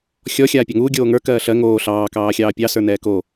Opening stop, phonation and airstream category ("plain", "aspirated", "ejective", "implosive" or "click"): plain